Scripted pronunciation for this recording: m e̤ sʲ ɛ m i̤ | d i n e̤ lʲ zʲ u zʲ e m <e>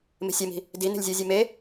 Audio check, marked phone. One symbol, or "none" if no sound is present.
e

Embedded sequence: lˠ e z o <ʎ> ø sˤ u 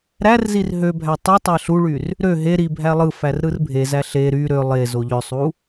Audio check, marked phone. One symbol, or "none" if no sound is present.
ʎ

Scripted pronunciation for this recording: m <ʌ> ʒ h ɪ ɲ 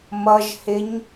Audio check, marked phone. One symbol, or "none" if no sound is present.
ʌ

